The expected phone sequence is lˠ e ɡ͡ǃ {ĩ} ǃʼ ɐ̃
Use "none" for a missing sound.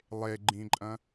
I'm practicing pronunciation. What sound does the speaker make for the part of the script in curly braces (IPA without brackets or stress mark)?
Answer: ĩ